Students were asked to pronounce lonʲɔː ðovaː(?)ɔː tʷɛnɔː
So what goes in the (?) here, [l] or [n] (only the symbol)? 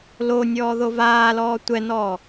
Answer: l